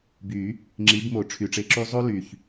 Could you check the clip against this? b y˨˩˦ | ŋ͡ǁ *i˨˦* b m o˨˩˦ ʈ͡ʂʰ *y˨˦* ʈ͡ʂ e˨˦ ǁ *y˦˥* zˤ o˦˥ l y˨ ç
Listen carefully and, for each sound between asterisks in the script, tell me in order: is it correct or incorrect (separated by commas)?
correct, incorrect, correct